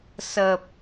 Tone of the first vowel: low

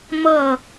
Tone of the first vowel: falling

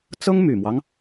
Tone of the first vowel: high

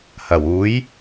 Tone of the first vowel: low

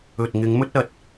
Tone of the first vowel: low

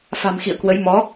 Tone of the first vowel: low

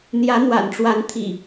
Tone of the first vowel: rising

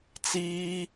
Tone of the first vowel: high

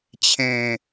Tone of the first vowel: low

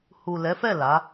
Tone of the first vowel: low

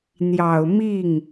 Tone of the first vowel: low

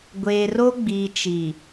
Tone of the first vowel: low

